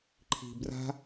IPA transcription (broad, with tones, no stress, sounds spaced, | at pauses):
ǃʰ i̤˧ b r a̤˦